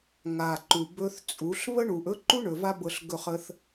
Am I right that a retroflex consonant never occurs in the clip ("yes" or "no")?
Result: no